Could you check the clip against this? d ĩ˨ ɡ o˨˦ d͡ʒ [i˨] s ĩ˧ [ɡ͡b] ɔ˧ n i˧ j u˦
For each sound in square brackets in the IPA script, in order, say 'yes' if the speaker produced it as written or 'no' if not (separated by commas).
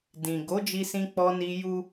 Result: no, no